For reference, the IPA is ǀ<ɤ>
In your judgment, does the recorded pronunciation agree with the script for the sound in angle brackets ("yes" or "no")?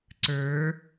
no